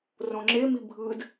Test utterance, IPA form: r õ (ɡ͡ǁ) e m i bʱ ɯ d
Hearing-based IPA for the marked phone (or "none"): ŋ͡ǁ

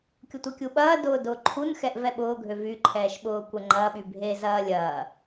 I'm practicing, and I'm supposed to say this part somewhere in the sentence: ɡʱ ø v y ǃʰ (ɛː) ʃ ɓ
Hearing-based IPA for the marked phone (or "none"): ɛː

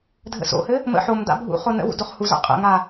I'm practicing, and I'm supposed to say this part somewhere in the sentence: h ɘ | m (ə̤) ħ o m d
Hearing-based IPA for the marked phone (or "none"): ə̰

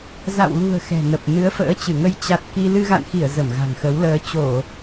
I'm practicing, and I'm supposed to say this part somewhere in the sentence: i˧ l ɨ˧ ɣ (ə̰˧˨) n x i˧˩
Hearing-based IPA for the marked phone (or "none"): a̰˧˨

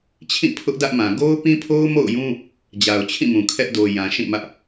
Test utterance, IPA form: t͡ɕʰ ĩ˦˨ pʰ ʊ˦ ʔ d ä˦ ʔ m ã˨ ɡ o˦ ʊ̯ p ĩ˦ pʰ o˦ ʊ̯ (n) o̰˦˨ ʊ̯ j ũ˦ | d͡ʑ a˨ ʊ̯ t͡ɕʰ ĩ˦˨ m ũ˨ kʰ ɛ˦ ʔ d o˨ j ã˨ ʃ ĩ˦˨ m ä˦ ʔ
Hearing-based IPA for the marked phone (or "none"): m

